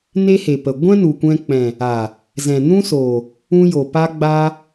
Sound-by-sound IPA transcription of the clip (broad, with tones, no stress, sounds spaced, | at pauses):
n e˦ h e˨ p ə˨ ɡʷ ɛ̃˦ n u˨ kʷ ɛ̃˧ k͡p ɛ̃˨ | a˨ | z ɛ̃˨ n ũ˦ s oː˨ | ũ˧ j o˨ p a˧ ɡ͡b a˧